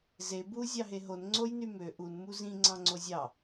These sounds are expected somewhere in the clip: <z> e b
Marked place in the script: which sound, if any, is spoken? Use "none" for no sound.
z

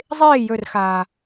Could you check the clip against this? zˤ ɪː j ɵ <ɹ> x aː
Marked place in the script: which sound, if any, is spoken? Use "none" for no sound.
r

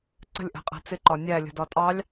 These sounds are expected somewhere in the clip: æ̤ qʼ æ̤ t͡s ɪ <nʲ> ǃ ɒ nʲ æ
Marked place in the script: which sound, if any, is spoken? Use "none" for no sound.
none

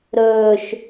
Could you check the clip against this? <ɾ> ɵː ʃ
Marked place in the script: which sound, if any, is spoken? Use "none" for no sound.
ɾ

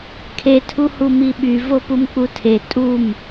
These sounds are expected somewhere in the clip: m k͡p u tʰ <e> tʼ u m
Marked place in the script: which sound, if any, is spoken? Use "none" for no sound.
e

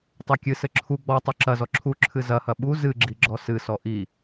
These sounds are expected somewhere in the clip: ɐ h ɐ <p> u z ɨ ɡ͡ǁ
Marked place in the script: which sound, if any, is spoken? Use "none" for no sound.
ɓ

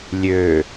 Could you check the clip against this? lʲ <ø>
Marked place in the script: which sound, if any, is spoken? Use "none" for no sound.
ø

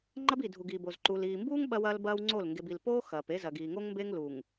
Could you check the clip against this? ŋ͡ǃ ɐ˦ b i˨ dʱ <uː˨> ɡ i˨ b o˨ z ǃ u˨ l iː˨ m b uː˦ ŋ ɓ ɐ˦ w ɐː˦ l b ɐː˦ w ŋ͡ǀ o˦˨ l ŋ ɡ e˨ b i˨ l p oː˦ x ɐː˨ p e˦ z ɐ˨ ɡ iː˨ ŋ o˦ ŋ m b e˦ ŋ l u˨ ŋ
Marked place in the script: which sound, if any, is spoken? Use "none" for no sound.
u˨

